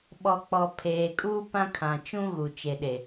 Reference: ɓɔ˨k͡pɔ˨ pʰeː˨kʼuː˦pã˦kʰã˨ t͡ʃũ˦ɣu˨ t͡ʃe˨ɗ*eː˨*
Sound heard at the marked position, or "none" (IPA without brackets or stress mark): e˨